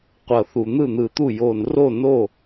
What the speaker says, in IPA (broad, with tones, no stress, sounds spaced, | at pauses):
qʷ ʌ˨˩ θ u˨˩ n̪ ɯ˥˩ n̪ ɯ˨˩ t̪ u˥˩ j o˨˩ n r o˥˩ n o˥˩